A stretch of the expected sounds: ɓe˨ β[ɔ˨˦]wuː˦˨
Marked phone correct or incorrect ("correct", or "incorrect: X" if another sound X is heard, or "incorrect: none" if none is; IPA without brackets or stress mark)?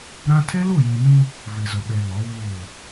correct